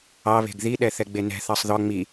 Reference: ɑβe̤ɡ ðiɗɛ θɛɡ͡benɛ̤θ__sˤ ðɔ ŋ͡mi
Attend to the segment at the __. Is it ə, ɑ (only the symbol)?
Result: ɑ